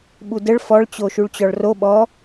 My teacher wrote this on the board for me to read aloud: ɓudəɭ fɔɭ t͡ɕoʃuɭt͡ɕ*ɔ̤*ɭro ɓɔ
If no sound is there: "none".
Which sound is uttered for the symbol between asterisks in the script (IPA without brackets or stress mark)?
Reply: ɔ